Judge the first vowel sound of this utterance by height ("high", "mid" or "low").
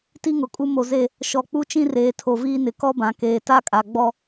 high